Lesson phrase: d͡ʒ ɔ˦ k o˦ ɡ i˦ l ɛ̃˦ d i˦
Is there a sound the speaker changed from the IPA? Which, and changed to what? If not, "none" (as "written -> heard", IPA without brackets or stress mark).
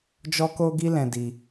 none